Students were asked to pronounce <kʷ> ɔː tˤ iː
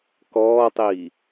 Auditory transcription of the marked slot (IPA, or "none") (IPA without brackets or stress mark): k